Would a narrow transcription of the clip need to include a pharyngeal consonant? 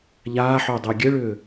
yes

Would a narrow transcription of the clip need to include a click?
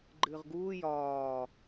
yes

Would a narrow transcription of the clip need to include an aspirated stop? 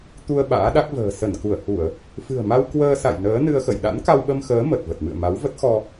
no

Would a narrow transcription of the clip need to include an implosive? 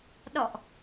yes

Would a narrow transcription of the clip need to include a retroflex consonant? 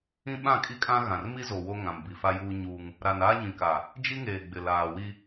no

